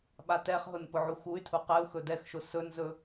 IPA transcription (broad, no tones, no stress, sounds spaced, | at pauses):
ɓ a t ɛ χ ɦ ʊ n p ʊ ʕ u x u y̯ tʰ u q ɛ u̯ x ɵ d ɛ x ʃ ʊ s ɵ n z ɵ